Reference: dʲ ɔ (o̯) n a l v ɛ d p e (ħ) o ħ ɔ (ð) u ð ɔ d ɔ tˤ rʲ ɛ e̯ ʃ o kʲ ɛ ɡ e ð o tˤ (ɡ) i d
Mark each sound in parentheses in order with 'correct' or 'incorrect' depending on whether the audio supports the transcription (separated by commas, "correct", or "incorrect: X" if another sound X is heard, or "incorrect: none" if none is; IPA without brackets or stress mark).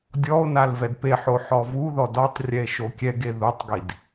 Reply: correct, correct, incorrect: v, correct